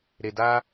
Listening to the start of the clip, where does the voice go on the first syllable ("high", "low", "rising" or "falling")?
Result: low